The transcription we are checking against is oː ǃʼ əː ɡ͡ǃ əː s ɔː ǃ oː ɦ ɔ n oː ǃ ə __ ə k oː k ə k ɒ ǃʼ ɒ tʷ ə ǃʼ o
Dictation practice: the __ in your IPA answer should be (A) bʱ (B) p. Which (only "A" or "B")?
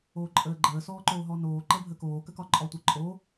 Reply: A